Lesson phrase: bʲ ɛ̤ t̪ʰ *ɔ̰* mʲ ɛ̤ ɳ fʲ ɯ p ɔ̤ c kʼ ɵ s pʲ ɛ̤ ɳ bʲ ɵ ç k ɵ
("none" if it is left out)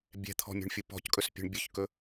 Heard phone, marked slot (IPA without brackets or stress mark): ɔ̤